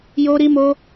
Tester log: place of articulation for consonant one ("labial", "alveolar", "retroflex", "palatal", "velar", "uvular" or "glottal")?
palatal